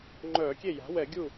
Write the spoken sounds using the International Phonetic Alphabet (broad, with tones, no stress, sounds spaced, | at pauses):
ŋ͡ǃ œː˧˩˧ kʲ e˥˩ j a̤˩˥ w ɛ˧˩˧ ɡʲ u˥˩